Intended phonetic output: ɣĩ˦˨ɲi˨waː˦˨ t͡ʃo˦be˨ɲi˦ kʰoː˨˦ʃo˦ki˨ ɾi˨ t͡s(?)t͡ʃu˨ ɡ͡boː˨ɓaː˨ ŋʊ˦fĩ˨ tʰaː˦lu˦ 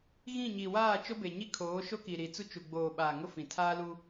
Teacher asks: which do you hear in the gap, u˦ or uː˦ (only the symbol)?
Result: u˦